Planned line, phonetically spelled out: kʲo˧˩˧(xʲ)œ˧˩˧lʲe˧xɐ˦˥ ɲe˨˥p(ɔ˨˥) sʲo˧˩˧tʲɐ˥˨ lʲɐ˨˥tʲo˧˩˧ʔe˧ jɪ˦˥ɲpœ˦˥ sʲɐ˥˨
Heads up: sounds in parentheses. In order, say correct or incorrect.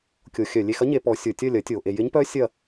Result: correct, correct

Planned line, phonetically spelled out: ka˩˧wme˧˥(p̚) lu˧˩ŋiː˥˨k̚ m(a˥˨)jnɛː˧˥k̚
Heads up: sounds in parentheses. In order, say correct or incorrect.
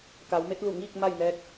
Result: incorrect, correct

